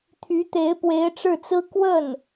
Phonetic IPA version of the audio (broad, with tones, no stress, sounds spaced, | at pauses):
t̪ʰ y˧˥ t̪ e˧˥ ɪ̯ p w e˧˥ ɪ̯ ʈ͡ʂ ɻ̩˥˩ t͡s ɹ̩˥ k w ə˥˩ n